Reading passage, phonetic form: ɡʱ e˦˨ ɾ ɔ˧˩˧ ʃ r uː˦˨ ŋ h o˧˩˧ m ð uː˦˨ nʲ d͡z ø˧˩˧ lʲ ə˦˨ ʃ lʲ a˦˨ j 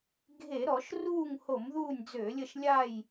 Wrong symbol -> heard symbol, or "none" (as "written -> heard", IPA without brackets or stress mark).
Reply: e˦˨ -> e˧˩˧